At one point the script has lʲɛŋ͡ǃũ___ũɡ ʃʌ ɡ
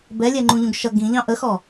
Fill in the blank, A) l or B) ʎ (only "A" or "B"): B